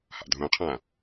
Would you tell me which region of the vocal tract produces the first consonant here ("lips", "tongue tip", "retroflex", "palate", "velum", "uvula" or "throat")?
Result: throat